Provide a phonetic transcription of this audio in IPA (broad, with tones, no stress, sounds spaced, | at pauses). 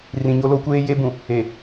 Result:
r ĩ˨ ɲ o˦ l o˦ kʷ eː˦ j e˦ b ũ˨ | e˨